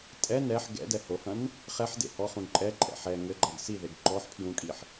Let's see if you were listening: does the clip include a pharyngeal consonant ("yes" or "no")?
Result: yes